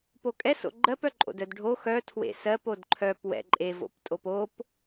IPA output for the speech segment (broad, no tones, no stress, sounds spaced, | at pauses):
p o kʼ ɛ s o̰ ɡ͡ǃ ɜ p œ ǃʼ o̰ d œ d ɖʱ o x œ tʰ w ḛ s ɜ p o d ǃʰ œ p w ɛ̰ ǃʼ e v o̰ p tʼ o p o p